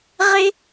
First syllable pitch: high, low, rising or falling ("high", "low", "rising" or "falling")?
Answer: high